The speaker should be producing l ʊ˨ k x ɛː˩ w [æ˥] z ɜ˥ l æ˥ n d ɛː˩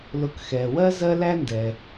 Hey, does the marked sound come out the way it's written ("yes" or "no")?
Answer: no